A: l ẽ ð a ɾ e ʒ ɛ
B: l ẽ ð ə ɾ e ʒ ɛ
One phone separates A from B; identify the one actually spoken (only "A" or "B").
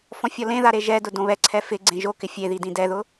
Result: A